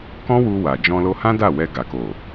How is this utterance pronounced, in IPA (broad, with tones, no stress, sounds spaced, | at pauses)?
k ɔ̃˦ w u˧ w a˨ d͡ʒ ɔ̃˧ l o˧ h ã˦ d a˦˨ w ɛ˧ ɡ a˨ k o˨